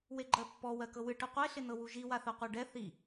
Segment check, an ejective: absent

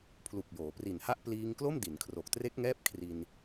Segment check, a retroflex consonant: absent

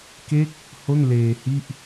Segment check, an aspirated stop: absent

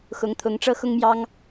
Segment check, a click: absent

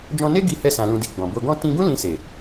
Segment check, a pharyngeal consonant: absent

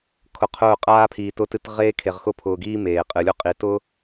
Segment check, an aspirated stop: present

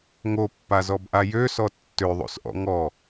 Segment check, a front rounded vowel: present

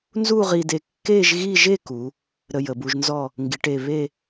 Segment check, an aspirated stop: absent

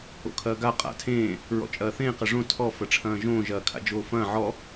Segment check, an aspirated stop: present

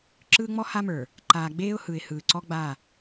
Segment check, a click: present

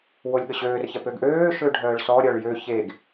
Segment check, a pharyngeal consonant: absent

